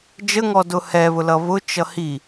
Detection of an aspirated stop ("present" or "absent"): absent